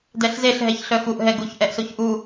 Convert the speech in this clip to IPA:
d ɛ ɬ z e ɬ ɦ ɛ ç ɬ œ x u ʔ ɦ ɛ ɡ u ç ʔ ɛ ʔ s o ç ʔ u

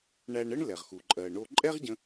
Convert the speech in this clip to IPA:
ɳ æ˧ ɳ ə˥ ɳ l ɛ˩ ʁ x uː˩ ǃʼ ɜ˩ ɳ o˧ ǃʼ ɛ˥ ʁ ɟ ə̃˧

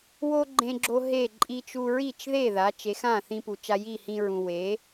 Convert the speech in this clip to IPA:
w o˥ ɡ͡ǃ ẽ˥ ɡ͡ǁ o˥ ɦ e˥˩ ǃʼ i˧ t͡ʃ u˧ ɹ i˥˩ t͡ʃ ð e˥˩ ð a˩˥ t͡ʃ e˩˥ x ã˥˩ θ ĩ˧ p u˩ t͡ʃ a˧ j i˥˩ h ĩ˧ ɹ ũ˩ w e˩˥

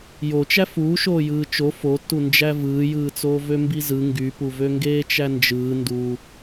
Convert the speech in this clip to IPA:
j o t͡ʃ æ f uː ʃ oː j ɯː t͡ʃ o f o tː u n d͡ʒ æ v ɯː j ɯː t͡s oː v ø m b i z ɯ ŋ ɡ y p u v ø ŋ ɡ eː t͡ʃ æ n d͡ʒ ɯː n d u

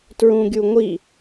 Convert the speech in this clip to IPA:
t ɹ ũ ɡʲ u ŋʷ i

